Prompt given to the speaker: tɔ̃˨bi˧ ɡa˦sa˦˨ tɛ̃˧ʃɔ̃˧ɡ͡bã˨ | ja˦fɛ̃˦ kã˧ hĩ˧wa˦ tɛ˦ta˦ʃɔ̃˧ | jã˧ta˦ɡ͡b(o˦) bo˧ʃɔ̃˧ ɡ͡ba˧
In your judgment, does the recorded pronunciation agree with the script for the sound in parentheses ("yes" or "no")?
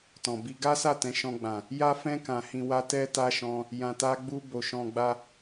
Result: no